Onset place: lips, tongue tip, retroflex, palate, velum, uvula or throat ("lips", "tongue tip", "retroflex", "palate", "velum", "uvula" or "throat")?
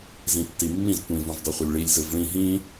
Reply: tongue tip